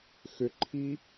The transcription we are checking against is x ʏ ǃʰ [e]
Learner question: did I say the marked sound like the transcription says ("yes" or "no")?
no